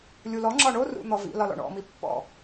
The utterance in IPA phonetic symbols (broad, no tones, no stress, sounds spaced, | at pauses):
lʲ u l ɔ ŋ͡ǁ ɒ ɳ o r ṵ n̪ ɔ v ḭ l ɒ l ɔ̰ ɳ ɔ̰ m i pː ɔ̰